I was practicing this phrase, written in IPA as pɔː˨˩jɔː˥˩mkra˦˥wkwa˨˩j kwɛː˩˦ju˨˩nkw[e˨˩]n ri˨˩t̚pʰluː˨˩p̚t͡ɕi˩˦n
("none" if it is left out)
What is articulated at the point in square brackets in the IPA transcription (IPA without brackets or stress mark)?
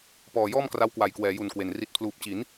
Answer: e˨˩